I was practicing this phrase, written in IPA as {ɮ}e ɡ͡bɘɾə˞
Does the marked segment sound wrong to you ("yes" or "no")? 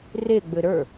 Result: yes